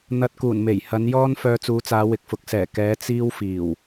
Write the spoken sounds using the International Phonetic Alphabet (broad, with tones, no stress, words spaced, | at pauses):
n̪ɐ˧t̚kuː˨˩nme˨˩j hɐ˨˧njɔː˥n fœː˧t͡suː˨˧t͡saː˨˧ wɪ˨k̚fʊ˨˥k̚sɛː˨˩ kɛː˨˧ t͡siː˥wfiː˨˩w